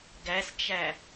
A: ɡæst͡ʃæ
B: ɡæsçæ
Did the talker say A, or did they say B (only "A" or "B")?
A